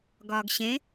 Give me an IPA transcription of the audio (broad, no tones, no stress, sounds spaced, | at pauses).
ɡ ɒː ɡ ɕ ẽ